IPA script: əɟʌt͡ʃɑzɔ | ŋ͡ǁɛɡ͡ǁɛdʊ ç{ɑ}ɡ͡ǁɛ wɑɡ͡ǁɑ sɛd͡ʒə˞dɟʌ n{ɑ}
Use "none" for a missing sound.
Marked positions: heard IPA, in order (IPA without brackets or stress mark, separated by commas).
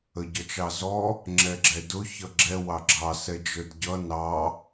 ʌ, ɑ